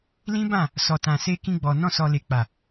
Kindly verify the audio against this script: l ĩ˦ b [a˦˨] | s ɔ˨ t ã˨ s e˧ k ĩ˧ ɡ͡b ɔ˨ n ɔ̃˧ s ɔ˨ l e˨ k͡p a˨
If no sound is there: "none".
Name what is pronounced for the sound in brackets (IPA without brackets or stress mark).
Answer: ã˦˨